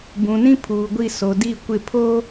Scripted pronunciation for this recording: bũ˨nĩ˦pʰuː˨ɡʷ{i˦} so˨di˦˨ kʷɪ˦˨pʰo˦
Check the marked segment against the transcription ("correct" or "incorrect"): incorrect